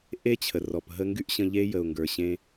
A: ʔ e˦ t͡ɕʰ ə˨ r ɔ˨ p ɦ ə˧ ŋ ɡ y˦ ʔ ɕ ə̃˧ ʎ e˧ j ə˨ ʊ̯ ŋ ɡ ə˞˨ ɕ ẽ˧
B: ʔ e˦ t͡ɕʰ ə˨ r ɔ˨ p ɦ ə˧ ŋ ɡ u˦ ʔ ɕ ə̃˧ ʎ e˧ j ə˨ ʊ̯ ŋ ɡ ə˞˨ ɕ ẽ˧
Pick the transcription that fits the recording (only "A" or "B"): A